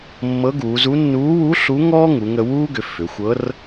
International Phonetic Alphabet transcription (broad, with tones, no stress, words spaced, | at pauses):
mːɤ˧˥ɡuː˩˧zu˧˥ nːuː˧˥wu˧˥ ɬu˧˥ŋɔː˥ŋu˩˧ŋə˧ wuː˥ɡʏ˩˧ fʏ˩˧xʷɤ˧˥r